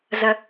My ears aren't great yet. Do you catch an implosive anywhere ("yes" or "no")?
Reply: no